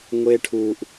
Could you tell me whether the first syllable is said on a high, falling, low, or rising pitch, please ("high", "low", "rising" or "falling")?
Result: high